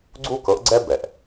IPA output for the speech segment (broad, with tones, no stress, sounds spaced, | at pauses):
ɡ͡ǀ u˦ k ɤ˨˦ ʔ ɡ͡ǀ ɛ˦ b ɛ˩ ʔ